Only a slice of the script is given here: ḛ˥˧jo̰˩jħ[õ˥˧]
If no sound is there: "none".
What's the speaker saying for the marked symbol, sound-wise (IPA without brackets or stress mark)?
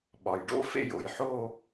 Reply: o˥˧